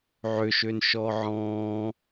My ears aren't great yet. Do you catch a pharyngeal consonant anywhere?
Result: yes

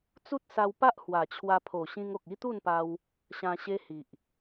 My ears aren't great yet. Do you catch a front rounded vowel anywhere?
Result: no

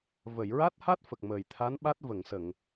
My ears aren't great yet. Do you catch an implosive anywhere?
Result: yes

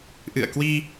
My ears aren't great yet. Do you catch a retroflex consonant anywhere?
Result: no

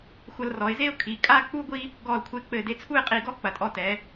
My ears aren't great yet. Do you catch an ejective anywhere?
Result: yes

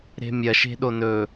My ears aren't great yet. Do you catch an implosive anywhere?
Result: yes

